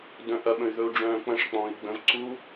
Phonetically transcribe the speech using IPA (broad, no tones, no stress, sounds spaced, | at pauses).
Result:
d œ̃ ʔ ɐ ɓ ə̃ y̯ ð ɵ u̯ ɖ͡ʐ œ̃ː k͡p ɐ̃ ʂ k͡p ɔ̃ː i̯ ɡ͡b ə̃ v ǀ u